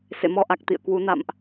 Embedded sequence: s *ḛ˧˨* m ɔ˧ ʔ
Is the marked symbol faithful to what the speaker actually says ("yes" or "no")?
yes